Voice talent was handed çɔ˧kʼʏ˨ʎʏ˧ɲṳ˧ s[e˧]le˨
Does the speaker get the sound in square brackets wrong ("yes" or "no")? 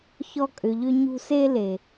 no